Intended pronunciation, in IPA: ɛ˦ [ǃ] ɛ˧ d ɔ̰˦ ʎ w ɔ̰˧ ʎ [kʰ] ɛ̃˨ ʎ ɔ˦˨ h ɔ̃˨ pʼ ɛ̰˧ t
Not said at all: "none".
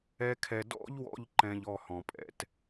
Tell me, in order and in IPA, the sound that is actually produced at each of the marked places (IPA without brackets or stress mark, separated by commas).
kʰ, ǃ